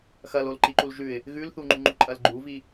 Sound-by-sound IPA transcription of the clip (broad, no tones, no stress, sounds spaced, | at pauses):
x ɐ l o l ǃ i ǃ u l ʒ ʉ ɪ̯ | ɣ ʉ l θ u ŋ͡ǃ u ŋ͡ǃ u ǃʼ ɐ l ɡ͡ǃ u v i